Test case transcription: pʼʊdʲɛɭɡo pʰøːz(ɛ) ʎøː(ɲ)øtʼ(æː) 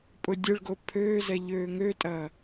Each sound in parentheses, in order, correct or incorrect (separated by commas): correct, incorrect, incorrect